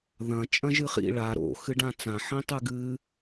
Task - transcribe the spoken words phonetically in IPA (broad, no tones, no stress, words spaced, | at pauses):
ðɐ̃ t͡ʃʼɐ̃ʒɨχḭ ɭa ɾo̰ xɨɖãt͡sã ħĩtˤɨɡɨ